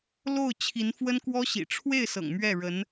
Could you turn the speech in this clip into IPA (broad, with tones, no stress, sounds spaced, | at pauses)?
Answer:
l o˥˩ ʊ̯ t͡ɕʰ i˧˥ n f w ə˥ n k w ɔ˥ ɕ ḭ˨˩ ʈ͡ʂʰ w e˥˩ ɪ̯ s ɤ̰˨˩ ŋ m ɥ ɛ˥˩ ɻ ə˧˥ n